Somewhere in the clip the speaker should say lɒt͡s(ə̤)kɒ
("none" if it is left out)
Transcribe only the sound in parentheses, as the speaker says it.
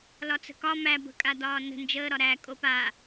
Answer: ə̤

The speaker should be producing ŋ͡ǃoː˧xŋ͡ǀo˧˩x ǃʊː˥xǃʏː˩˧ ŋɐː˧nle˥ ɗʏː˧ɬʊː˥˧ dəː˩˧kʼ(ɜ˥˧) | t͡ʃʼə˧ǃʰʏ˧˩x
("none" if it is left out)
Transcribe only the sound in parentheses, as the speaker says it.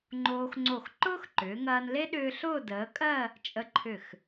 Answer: ɜ˥˧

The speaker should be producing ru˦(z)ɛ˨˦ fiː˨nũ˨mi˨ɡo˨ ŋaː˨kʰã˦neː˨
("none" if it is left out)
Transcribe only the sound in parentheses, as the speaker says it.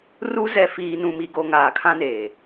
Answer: z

